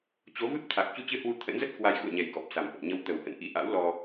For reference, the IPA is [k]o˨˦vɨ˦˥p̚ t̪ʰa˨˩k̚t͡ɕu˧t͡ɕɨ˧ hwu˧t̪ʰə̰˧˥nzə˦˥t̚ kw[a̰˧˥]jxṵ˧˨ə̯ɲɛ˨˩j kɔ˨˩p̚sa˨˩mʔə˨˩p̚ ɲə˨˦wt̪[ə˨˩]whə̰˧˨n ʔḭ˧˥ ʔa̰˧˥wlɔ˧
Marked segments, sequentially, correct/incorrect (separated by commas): incorrect, incorrect, correct